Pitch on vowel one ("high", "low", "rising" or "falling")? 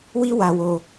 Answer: high